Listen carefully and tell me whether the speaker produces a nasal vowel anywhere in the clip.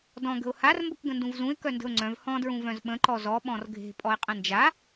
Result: yes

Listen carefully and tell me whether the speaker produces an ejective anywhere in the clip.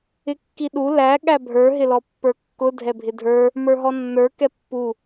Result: no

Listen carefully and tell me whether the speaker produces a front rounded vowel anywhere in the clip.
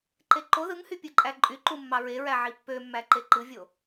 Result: yes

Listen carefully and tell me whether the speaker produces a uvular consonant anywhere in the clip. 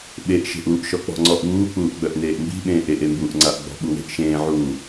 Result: no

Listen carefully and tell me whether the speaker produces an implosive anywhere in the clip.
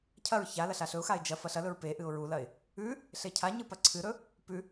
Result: no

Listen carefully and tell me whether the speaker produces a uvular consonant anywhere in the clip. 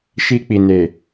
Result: no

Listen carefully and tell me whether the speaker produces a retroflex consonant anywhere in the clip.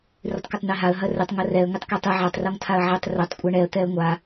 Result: yes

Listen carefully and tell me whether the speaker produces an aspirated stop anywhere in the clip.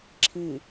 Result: yes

